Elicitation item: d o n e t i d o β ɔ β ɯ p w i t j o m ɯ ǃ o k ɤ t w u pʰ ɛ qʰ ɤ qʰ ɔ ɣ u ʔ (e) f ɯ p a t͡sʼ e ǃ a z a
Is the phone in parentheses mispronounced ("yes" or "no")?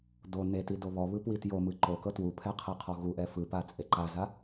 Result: yes